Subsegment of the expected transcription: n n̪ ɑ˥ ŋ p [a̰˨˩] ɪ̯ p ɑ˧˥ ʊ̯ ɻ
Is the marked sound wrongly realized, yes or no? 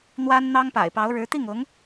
no